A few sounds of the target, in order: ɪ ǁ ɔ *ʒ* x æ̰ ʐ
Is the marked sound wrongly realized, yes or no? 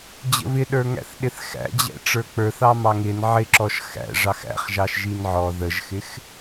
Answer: yes